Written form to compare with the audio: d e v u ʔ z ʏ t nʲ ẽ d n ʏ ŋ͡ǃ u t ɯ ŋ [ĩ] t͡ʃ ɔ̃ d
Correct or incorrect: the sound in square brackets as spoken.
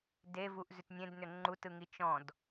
incorrect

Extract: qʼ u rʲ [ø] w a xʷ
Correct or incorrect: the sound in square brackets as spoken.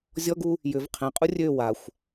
correct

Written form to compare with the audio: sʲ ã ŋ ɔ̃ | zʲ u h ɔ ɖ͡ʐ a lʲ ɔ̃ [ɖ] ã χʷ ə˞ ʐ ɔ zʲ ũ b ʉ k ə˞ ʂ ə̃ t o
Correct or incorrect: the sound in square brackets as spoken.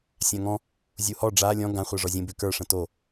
incorrect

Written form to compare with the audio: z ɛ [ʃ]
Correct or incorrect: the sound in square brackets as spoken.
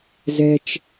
incorrect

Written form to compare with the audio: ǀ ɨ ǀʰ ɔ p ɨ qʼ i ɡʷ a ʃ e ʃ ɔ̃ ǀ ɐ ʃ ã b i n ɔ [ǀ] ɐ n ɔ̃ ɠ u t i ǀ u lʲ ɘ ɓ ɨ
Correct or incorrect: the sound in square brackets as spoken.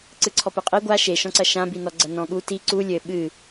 incorrect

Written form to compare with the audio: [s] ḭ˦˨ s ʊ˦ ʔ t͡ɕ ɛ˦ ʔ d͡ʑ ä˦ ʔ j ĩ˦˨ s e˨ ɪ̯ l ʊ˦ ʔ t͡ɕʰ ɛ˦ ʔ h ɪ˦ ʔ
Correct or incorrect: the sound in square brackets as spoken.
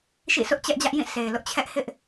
incorrect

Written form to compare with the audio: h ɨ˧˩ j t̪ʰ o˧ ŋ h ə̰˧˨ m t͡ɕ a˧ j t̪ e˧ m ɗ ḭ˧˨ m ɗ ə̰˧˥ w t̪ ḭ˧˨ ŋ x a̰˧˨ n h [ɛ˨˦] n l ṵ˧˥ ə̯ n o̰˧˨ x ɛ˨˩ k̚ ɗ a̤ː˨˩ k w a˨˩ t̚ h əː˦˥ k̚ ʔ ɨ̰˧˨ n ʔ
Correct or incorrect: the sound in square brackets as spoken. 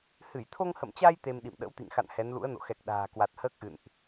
correct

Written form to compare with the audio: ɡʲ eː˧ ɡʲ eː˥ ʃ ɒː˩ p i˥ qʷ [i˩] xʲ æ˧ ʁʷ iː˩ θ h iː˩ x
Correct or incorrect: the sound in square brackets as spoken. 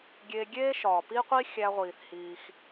incorrect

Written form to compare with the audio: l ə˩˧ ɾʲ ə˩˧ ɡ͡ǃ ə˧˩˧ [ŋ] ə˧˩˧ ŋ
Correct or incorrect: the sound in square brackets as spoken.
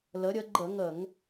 correct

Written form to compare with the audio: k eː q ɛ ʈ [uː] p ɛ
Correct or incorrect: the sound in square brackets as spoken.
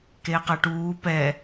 correct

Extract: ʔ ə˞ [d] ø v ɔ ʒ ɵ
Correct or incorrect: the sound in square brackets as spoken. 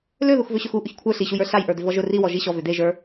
correct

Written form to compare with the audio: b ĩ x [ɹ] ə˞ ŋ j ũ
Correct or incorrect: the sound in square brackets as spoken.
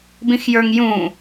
incorrect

